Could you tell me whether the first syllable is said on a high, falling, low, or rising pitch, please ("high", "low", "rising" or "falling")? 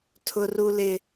high